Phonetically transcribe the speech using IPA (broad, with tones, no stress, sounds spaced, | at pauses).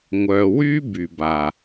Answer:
ŋʷ œː˨ w yː˦ b y˩ b a˩